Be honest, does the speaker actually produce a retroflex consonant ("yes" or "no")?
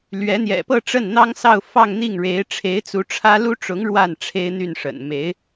yes